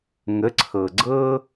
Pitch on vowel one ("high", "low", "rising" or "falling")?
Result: rising